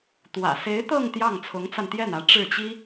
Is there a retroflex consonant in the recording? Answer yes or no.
yes